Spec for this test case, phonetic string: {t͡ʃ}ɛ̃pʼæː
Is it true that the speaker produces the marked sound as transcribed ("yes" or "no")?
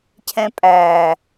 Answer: no